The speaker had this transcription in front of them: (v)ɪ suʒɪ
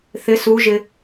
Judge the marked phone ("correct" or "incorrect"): incorrect